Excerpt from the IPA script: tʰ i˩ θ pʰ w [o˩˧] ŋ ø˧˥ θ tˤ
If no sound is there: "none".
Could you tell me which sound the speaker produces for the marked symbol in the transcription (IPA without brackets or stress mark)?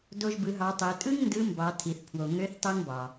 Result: o˩